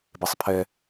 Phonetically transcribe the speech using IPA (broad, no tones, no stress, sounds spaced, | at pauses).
b e sˤ pʰ ɛ